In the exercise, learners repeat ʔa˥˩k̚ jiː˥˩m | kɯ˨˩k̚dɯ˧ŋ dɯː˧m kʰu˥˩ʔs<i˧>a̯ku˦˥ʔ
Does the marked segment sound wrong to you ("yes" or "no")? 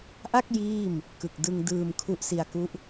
no